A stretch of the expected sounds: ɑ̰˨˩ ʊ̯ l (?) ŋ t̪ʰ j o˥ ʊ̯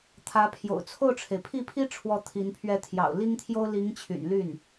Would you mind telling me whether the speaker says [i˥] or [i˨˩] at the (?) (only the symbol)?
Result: i˥